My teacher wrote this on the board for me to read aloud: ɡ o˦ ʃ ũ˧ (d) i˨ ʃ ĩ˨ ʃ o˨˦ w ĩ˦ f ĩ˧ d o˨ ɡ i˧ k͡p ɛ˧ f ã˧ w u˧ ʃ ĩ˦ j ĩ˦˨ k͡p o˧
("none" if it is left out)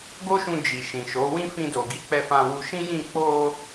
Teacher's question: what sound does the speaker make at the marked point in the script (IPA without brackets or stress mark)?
d͡ʒ